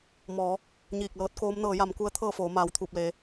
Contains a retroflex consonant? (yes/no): no